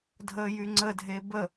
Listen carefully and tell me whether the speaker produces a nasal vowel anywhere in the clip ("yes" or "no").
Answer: no